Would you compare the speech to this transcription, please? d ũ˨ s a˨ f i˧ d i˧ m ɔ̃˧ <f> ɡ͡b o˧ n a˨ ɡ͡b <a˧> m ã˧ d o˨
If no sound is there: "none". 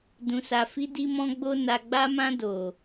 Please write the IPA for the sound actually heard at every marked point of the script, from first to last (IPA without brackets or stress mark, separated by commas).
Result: none, a˧